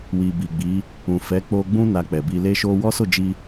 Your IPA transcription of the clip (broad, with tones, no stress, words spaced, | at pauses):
wi˨bi˨ɡ͡bi˨˦ | ũ˨fɛ˨˦k͡po˧ɡ͡bũ˦ na˧k͡pɛ˨bi˧ le˦ʃo˦ wɔ˦so˦˨d͡ʒi˧